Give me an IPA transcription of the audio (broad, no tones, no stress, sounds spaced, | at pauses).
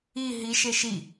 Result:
i ɦ i ʃ e ʃ i